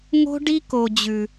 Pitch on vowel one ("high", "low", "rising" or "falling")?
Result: high